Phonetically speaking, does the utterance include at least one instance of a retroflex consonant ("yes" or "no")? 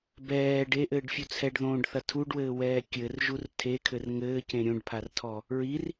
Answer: yes